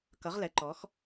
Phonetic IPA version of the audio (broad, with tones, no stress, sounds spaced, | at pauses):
k ʌ˩˧ ʁ l ɛ˩˧ ǃ ɔ˩˧ x